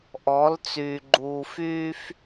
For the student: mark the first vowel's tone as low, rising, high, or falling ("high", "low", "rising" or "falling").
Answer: rising